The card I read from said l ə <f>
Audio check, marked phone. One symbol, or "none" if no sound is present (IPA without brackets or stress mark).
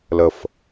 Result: f